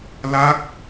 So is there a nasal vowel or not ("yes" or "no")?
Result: no